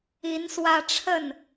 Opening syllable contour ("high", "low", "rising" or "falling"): rising